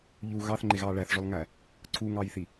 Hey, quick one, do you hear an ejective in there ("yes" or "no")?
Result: no